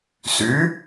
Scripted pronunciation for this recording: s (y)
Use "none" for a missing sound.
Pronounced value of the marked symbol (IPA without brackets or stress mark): y